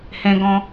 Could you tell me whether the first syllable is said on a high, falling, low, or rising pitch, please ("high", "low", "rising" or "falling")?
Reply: high